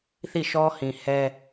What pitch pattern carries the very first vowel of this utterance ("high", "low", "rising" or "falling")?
falling